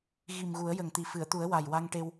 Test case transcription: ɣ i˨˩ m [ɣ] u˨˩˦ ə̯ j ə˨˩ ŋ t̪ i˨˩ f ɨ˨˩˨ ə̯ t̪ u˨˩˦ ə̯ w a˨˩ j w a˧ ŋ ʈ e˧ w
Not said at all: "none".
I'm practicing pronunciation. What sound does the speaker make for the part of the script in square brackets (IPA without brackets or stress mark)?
ɣ